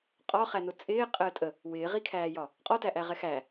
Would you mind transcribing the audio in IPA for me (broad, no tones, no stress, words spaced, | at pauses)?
qʼɒχænʊ t͡sʼɪːqʼəː tʼə | wɪːʁikʰæːjɒ | qʼɔtæʔæʁɛ xæ